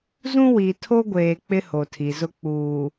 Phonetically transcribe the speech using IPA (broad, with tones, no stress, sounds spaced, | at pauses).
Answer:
z ũ˦ w i˨ tʰ o˦ ɡʷ eː˨ k͡p ɪ˦ h o˨ tʰ i˨ z ʊ˦ k͡p uː˨